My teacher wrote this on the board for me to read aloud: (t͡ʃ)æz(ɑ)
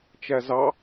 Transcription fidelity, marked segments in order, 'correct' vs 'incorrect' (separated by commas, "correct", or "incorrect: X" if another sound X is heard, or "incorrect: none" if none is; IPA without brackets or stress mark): correct, correct